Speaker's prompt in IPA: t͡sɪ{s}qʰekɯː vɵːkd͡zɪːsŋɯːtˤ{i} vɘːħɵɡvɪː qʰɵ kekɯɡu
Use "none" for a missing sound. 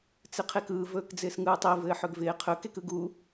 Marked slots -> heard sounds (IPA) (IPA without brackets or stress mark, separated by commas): none, i